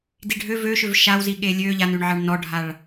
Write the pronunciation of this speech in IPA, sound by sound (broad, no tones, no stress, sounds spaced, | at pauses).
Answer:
d i ɖʱ ø v ø ʃ ø v ʃ a w z i ɠ e lʲ ø ʎ a n ʉ ɳ ʕ ɑ ɳ n ɔ ɖʱ a ɭ